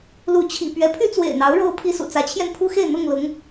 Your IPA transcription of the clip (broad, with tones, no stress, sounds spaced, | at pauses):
l u˨˦ t͡ɕʰ ḭ˨˩ p ɥ ɛ˨˦ pʰ y˦ t͡s w ḛ˨˩ ɪ̯ n̪ ɑ˨˦ ʊ̯ ɻ o˦ ʊ̯ pʰ i˦ s ṵ˨˩ t͡s ä˨˦ t͡ɕʰ j ɛ˧ n pʰ u˦ x e˥˨ ɪ̯ n̪ ʊ˥˨ ŋ l ʊ˨˦ ŋ